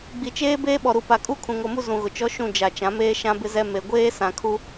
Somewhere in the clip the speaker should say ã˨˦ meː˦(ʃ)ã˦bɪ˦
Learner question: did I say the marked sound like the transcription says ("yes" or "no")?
yes